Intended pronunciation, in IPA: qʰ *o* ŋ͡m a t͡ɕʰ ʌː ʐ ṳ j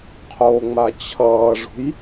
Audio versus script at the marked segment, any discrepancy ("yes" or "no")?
no